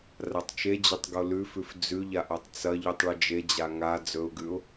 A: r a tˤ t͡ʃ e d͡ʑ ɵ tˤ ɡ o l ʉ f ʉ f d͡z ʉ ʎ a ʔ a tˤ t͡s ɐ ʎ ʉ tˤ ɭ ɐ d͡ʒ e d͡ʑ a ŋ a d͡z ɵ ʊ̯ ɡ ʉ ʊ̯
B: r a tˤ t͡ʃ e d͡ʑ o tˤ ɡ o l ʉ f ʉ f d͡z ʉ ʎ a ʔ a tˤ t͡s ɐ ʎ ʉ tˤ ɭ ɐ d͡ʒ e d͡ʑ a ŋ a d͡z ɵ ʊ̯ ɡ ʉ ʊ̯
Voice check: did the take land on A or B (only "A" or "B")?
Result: A